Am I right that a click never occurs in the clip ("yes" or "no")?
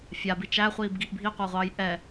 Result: yes